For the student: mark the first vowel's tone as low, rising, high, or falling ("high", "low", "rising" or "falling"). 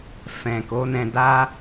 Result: low